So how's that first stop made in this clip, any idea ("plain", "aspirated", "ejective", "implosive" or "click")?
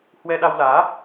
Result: implosive